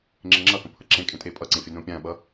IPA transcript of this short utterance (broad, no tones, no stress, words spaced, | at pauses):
ŋ͡ǁɪŋ͡ǁʌhõ pʰʌǁẽkʼẽ tʼepʼʌǀẽ fʲənõpʲãɓʌ